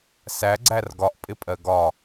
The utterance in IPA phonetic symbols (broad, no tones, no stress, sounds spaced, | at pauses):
s æ ɡ͡ǀ æ r ɡ ɒ ʔ pʼ ɪ pʼ ɜ ɡ ɒ